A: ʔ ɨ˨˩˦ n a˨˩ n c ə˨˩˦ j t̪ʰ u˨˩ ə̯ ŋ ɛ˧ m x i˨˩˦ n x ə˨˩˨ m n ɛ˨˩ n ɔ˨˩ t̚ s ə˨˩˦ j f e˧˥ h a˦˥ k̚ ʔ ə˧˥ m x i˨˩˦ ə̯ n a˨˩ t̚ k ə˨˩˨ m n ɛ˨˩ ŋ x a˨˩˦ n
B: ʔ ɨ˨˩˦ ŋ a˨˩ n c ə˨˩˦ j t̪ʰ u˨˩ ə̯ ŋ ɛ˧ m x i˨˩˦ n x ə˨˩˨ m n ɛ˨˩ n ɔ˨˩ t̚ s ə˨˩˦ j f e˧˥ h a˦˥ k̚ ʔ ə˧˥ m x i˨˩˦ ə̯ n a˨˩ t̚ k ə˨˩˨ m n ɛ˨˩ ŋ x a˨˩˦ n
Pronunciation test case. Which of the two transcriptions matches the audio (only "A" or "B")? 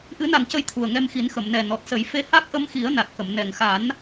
A